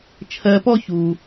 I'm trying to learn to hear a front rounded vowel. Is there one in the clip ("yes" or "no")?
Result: no